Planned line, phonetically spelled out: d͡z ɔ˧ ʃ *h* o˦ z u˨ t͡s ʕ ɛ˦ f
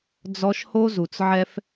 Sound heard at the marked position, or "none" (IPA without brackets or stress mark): h